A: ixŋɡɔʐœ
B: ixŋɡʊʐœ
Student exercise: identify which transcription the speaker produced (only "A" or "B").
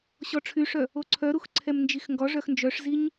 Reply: A